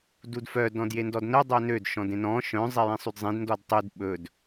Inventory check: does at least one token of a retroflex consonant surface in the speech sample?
no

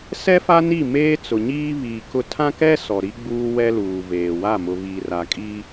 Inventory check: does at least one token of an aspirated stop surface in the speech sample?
yes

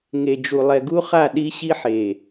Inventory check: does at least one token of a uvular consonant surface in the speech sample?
yes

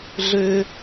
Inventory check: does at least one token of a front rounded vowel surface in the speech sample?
yes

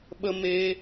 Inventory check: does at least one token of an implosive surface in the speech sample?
yes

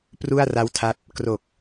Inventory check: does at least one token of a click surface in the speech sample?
no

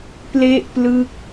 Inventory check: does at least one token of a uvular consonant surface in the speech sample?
no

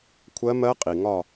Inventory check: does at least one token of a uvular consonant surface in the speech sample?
yes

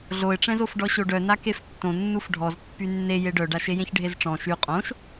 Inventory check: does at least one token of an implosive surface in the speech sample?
no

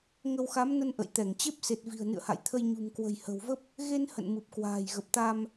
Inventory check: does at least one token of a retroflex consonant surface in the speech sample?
no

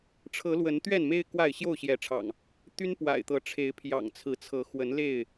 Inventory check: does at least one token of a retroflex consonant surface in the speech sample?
yes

